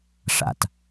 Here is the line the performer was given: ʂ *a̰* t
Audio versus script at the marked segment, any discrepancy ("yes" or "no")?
no